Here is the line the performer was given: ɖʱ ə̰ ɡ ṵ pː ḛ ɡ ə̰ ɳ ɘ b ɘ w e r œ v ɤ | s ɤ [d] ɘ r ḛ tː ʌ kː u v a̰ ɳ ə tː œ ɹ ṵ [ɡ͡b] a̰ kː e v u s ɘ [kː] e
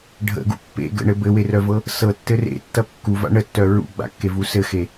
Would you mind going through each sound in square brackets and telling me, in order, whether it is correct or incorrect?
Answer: incorrect: tː, correct, incorrect: x

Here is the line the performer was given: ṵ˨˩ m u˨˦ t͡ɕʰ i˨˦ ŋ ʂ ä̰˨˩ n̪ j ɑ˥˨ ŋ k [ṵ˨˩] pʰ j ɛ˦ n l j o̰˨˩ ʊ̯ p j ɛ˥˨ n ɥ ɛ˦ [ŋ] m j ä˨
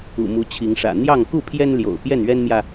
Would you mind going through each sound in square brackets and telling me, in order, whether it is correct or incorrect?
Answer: incorrect: u˥˨, incorrect: n

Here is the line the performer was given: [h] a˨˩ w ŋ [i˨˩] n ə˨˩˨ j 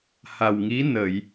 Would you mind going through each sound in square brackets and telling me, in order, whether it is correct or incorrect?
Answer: correct, incorrect: i˧˥

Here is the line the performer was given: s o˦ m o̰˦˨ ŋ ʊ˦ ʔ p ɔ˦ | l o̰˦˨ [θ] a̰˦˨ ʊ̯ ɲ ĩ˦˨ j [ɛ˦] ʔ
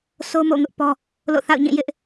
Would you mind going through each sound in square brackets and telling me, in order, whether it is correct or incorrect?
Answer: correct, incorrect: ɪ˦

